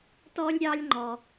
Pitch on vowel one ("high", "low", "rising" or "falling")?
high